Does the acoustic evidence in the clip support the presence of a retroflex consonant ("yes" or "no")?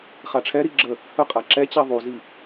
yes